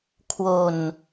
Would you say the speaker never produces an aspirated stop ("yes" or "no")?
no